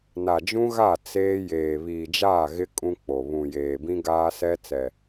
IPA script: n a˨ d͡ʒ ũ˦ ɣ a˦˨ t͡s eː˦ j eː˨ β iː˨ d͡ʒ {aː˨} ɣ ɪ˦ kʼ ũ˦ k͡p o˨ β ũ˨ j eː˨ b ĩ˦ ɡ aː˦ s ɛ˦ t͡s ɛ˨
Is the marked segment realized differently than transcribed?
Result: yes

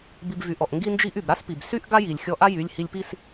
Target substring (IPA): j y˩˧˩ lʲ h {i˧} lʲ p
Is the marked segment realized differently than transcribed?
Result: no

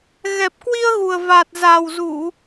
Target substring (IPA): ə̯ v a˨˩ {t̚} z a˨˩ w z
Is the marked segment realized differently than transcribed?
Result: no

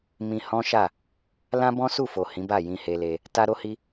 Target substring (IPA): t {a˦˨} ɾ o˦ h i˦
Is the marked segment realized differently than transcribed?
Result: yes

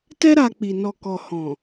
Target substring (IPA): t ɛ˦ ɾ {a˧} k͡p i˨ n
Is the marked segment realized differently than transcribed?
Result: no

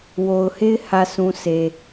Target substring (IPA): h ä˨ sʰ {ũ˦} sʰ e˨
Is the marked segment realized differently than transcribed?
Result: yes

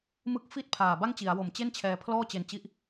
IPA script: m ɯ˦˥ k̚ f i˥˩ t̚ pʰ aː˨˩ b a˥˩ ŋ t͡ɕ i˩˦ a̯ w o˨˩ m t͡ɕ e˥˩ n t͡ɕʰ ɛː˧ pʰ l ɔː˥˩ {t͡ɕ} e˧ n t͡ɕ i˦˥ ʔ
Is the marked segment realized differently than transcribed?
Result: no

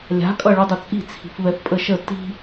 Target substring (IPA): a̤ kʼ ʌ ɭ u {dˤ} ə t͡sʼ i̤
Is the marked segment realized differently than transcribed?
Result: no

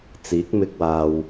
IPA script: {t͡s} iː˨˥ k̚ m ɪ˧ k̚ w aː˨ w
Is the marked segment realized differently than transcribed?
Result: no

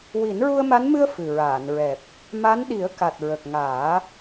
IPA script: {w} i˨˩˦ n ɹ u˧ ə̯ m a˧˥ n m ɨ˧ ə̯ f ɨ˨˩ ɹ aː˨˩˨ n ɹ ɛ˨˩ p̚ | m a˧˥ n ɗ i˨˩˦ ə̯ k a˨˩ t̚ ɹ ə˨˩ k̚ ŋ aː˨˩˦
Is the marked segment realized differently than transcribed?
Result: no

